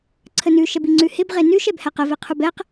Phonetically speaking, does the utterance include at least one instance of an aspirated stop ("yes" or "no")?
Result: yes